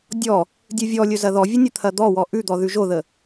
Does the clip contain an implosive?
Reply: no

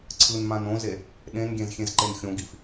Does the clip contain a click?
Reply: yes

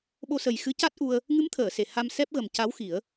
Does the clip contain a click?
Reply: no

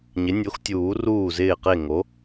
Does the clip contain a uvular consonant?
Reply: yes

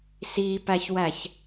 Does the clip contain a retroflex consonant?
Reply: no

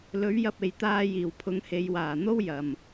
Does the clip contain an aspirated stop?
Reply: yes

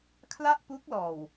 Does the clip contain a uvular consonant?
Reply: no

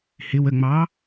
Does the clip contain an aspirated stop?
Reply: no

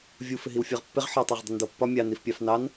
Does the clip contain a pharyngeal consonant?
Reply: yes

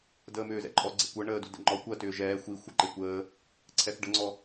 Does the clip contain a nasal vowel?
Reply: no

